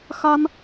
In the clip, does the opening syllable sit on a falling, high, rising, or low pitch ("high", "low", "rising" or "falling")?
high